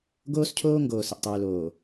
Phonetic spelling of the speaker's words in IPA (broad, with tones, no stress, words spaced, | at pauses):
ɡoː˦scʰoː˦ ŋɡoː˨sə˨ʔtˤʉː˨loː˨